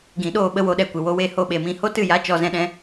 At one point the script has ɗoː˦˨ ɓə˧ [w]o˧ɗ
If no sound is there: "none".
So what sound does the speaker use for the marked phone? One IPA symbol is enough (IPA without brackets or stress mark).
w